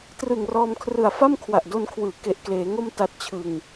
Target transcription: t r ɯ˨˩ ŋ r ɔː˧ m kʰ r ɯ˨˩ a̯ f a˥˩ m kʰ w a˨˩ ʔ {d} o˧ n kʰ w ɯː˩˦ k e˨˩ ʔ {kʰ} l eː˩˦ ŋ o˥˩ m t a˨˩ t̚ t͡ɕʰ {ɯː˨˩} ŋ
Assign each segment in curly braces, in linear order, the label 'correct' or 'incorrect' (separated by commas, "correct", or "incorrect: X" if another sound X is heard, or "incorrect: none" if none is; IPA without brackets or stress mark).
correct, incorrect: k, incorrect: ɯ˨˩